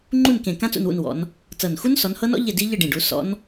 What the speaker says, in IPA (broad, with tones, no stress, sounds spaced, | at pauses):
ŋ͡ǃ u˦˨ n k ẽ˨˩ k ã˦˥ t͡s ṵ˦˨ n w ṵ˦˨ n w ɔ̰˨˦ n | t͡s ɤ˨˩ n x u˦˥ n s ɔ˨˦ n h ɤ˦˥ n ɔ̰˦˥ ʎ e˦˨ d i˦˥ ʎ ɯ˦˨ ɖ ĩ˨˩ ɖ u˨˦ s ɔ̰˦˥ n